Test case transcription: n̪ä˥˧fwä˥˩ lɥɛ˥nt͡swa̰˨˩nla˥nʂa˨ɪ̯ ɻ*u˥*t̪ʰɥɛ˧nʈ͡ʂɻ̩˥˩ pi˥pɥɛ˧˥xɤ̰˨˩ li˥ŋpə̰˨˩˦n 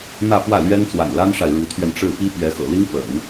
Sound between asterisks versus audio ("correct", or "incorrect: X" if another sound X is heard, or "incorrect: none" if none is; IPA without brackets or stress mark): incorrect: u˧˥